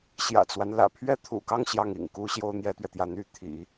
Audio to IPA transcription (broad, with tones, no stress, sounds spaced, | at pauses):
ɕ j ä̰˨˩ t͡s w a˦ n l ä̰˨˩ pʰ ɥ ɛ˥ t̪ʰ ṵ˨˩ k ɑ˥˧ ŋ ɕ j ɑ˥˩ ŋ ḭ˨˩ ŋ k u˥ ɕ j o˥ ʊ̯ n̪ j ɛ˥ t̪ ɥ ɛ˨ t̪ j ä˥˧ n̪ y˥˩ t̪ʰ ḭ˨˩˦